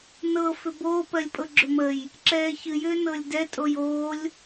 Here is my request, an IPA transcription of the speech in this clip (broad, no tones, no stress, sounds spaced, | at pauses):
n ɤ f ʏ b oː p ɜ lʲ pʼ ɤ ɡ͡ǁ ʏ m ə j | ǁ ɛː ç ɨ j ʏː n ɤ lʲ d ɛ tʼ o j oː lʲ